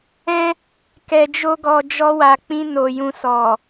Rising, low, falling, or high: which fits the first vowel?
high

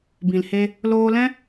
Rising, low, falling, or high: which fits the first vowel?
low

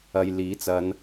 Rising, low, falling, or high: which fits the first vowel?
low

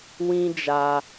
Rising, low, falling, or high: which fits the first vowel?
high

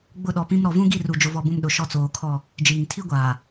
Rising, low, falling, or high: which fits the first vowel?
falling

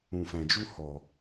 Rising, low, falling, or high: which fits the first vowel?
low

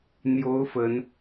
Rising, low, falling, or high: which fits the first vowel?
rising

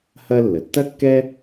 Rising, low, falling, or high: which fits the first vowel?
high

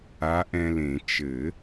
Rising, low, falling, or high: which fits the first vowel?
rising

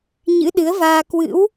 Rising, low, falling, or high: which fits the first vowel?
rising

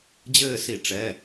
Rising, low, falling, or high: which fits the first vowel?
falling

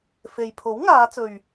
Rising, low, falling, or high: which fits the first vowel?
low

